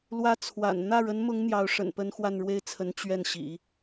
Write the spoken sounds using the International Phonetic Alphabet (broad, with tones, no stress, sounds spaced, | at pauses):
l w ä˧˥ t͡sʰ w a̰˨˩ n n̪ ä˥˩ ɻ ə˧˥ n m ʊ˧˥ ŋ n̪ j ɑ˧˥ ʊ̯ ʂ ə̰˨˩ n p ə˥ n x w a˥˧ n ɻ w e˥˩ ɪ̯ t͡sʰ ə˧˥ n t͡ɕ ɥ ɛ˥˩ n ɕ ḭ˨˩˦